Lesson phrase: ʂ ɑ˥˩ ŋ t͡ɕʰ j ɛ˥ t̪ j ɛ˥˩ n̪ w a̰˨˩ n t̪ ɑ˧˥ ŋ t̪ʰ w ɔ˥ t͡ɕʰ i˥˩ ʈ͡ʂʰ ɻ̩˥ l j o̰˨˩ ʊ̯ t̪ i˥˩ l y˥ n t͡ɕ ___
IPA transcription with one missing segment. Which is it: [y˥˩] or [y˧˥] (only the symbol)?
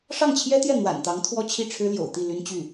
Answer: y˥˩